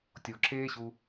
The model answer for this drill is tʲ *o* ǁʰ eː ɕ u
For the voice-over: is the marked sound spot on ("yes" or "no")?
yes